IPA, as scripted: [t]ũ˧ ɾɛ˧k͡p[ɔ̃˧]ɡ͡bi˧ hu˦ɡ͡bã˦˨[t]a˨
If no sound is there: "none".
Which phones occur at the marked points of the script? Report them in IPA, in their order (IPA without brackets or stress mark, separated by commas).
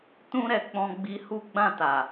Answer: t, ɔ̃˧, t